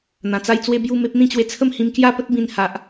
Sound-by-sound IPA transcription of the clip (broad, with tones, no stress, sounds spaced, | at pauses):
n̪ ã˨˩ t͡s a˥˧ j t͡s w e˧ b j u˥˧ m e˦ p̚ n̪ ĩ˥˧ t͡ɕ w e˧ t͡sʰ ə˥˧ m h ĩ˧ m k j a˥˧ p ə˦ t̚ b ĩ˧ n h a˨ ʔ